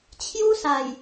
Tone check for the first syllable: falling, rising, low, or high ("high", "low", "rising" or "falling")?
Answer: high